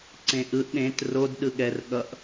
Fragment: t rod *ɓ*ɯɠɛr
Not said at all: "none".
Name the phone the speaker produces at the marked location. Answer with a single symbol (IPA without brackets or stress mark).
ɗ